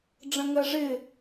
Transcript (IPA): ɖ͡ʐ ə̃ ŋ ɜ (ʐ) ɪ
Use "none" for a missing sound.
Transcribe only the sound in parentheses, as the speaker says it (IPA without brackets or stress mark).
ʐ